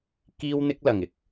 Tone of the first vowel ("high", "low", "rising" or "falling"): high